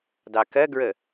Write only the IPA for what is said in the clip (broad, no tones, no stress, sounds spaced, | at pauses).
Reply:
d ɑ k ɜ ɡ ɹ ə